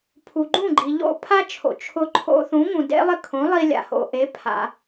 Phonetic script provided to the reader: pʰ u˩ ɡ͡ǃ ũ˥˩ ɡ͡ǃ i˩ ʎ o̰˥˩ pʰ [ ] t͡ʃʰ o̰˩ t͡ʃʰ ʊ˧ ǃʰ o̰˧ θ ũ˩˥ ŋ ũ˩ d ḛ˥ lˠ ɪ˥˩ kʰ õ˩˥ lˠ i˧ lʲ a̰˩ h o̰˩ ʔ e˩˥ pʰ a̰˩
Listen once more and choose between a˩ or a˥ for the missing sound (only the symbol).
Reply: a˥